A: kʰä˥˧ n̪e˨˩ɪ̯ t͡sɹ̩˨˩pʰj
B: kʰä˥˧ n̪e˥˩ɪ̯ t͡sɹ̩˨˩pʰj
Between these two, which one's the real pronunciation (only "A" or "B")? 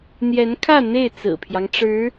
B